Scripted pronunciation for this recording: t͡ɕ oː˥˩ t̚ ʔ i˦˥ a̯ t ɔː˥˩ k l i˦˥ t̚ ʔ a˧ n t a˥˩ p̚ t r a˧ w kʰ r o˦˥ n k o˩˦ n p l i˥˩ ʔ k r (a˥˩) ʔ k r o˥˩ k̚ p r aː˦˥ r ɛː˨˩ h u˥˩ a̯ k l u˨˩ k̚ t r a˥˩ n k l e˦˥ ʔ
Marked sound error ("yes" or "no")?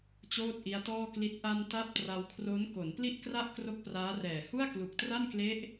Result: no